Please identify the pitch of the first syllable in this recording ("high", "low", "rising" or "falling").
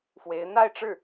rising